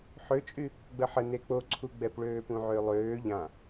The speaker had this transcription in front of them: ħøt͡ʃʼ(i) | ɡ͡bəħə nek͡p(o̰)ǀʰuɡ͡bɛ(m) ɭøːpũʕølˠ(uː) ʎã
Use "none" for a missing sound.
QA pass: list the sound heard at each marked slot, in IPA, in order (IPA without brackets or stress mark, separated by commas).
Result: y, o, p, øː